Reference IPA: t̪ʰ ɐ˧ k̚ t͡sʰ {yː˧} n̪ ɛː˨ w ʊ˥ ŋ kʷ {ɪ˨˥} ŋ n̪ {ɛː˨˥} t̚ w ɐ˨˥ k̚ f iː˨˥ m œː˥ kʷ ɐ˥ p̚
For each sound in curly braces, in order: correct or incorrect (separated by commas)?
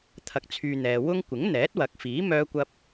correct, correct, correct